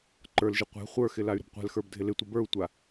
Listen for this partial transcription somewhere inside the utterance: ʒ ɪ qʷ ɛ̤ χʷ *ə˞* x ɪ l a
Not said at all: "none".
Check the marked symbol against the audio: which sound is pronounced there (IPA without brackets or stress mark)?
ə˞